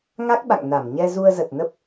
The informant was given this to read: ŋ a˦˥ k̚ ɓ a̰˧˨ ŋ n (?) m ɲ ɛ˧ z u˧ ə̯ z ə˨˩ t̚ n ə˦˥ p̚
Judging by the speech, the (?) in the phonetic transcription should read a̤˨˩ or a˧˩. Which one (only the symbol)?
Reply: a˧˩